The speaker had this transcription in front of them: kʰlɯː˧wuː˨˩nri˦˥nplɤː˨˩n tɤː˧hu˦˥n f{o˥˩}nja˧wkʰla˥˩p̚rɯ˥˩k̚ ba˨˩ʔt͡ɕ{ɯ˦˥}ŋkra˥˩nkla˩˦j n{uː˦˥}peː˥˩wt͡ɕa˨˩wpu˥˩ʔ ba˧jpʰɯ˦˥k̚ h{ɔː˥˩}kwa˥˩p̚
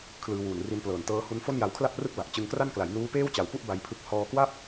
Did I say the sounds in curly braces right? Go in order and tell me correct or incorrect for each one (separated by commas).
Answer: correct, incorrect, correct, incorrect